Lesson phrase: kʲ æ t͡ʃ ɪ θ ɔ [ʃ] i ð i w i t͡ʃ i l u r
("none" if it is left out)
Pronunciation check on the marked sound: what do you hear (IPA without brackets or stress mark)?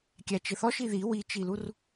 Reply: ʃ